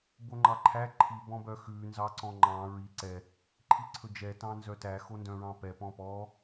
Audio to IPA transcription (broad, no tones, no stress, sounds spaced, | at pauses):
b o ŋ͡ǃ ɑ ǃʰ æ ǃʰ i b ɔ̃ b œ x ʉ n z ɑ ǀ ɔ̃ ŋ͡ǃ ɑ̃ ɹ i ǀ ɛ | ǃʰ i ǀʰ ɵ d͡ʒ ɛ t ɑ̃ n z œ t æ x o n d œ̃ ɹ ɑ̃ p ɛ p ɔ̃ p ɔ